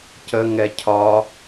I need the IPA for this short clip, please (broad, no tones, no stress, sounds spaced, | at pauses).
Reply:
c ə ŋ ɛ cʰ ɒ